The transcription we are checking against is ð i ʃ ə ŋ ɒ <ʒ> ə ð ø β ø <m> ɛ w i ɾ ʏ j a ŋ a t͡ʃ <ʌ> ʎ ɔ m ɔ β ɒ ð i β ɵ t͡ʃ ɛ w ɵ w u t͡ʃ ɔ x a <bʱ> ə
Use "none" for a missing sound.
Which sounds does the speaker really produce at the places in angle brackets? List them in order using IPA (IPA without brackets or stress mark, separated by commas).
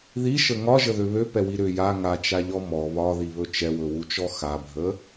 ʒ, p, a, bʱ